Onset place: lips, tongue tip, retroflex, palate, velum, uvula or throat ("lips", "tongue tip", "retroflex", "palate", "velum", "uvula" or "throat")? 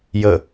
palate